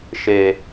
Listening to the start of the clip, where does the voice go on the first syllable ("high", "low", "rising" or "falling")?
low